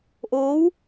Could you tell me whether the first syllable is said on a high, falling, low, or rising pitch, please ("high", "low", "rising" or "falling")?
rising